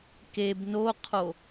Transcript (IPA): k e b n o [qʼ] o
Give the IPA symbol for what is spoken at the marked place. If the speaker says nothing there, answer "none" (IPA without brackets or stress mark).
qʰ